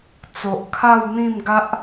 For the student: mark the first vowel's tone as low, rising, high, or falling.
low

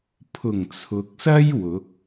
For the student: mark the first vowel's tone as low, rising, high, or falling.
low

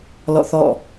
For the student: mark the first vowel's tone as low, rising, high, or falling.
falling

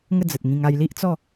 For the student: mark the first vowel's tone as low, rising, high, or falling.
falling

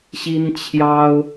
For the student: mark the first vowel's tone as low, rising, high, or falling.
high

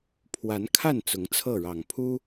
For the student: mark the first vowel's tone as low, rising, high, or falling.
rising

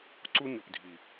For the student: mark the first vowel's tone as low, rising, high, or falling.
high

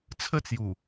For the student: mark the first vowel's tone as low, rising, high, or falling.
falling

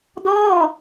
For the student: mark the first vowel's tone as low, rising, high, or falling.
falling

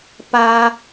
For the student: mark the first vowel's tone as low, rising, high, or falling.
low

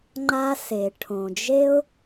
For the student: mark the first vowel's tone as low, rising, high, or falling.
high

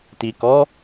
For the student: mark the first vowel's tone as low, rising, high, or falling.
low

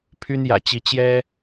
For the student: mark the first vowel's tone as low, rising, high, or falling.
high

